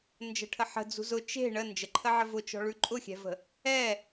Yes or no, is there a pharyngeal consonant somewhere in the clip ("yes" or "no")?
yes